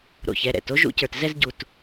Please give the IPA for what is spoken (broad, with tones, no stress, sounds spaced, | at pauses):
ɾ o̰˩ ç ɛ˩ ɾ ɛ̰˩ t o˥ ʒ ṵ˥ c ə˞˩ t z ɛ˥ z ɟ u˩ t